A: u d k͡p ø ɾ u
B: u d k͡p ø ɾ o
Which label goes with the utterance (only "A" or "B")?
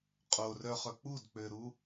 A